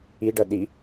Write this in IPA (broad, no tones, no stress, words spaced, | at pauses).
iɖʌ ɗi